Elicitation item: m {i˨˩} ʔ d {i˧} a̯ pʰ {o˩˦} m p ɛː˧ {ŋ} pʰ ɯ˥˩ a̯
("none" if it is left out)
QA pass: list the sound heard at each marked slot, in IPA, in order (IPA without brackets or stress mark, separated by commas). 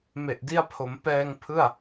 e˨˩, i˧, o˩˦, ŋ